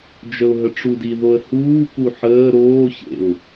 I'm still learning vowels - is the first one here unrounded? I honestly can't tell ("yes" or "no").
yes